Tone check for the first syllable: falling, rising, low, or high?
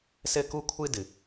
high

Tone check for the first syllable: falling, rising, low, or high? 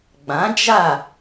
rising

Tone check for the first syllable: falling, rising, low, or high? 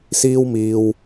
high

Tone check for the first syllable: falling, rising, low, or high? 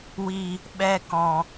low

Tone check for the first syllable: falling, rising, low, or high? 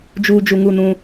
low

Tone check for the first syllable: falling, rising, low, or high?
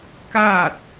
falling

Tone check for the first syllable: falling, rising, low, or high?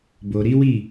low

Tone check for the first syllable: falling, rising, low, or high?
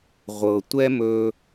low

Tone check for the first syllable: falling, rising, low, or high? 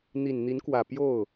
low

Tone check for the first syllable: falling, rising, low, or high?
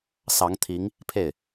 rising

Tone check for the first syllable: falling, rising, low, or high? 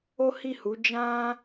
high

